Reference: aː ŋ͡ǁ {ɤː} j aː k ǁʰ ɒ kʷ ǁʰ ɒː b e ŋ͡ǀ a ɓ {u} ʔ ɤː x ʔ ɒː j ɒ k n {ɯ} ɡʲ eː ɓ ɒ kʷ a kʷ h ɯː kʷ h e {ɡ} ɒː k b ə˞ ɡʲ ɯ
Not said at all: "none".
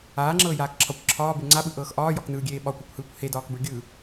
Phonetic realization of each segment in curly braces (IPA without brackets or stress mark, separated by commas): ɤː, ɯ, ɯː, d